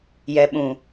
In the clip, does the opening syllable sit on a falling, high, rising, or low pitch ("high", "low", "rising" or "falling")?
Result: low